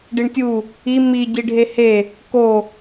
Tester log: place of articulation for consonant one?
retroflex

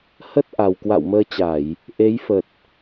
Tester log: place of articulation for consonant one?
glottal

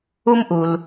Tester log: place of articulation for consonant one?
labial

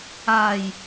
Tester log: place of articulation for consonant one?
palatal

